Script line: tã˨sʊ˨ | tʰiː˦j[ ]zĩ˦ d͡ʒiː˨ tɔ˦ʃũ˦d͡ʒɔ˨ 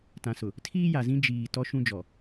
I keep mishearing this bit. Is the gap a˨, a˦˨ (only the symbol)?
a˨